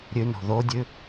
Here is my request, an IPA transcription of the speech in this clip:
ɾʲ ʉ n o̤ ð o dʲ ʉ

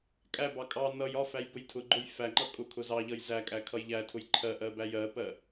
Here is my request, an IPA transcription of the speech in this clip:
kʼ æ b ɑ kʼ ɑ n ʌ j ɒ f æ j b ʊ j tʰ ʊ ɡ͡ǃ ʊ j f æ ŋ͡ǃ ʌ kʼ ʊ kʰ ʊ z ɑ ʎ ʌ j z æ kʼ æ kʰ ʌ j ʎ æ tʰ ʊ j ǃʰ ɜ ʔ ɜ b æ j ɜ p ɜ

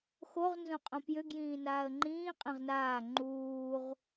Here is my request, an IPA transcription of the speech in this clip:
x o ʁ n z õ qʼ õ p j ʏ ɡ j ĩː n aː ə̯ ŋ͡ǃ ĩː qʼ ẽ ʁ n aː ŋ͡ǃ uː ʁ

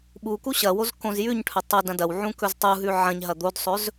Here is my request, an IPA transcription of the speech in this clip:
ɓ u k u ɕ ɐ w o z k õ z j ʉ ɲ ʈʰ ɵ tˤ ɐ d ɐ̃ d ɐ w ʕ ũ k ɵ z tˤ u ɦ ʉ ʕ ɐ̃ ɲ ɦ ɐ d̪ o d sˤ ɵ z

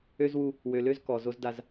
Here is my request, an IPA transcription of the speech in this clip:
ø˦ z w u˦ | w ø˨ l ø˦ z k ɔ˨ z o˦ z d a˦ z

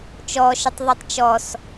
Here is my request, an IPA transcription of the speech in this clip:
t͡ʃ ɔ ʃ ə tˤ ðˤ e tˤ t͡ʃ ɔ s

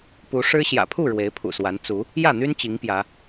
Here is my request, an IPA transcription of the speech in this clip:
p u˨˦ ʂ ɻ̩˦ ɕ j ä̰˨˩ pʰ u˥˨ ɻ w e˨˦ ɪ̯ pʰ ṵ˨˩ s w a˨˦ n t͡s u˨˦ | j ä˥˨ n̪ y˦ n t͡ɕ i˨˦ ŋ p j ä˨˦

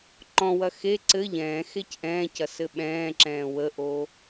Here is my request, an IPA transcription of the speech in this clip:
ǃ ɔ̃ w ɐ x e ǀ ɘ ʎ ɛ̃ː x e c ʔ ɛ̃ː c ɐ s ɘ ɓ ɛ̃ː ǁ ɛ̃ː w ə ʔ o

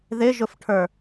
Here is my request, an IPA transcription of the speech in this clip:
ð ɪ ʒ ʊ f ʈʰ ə˞

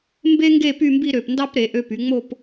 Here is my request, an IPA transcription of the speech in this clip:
m b e˥ ŋ ɡ e˥˧ p y˥˧ m b i˥˧ ɾ ø˧˩ p n d ɑ˥ p ɾ e˩˧ ʔ ø˧ p y˩˧ ŋ͡m o˥˧ p

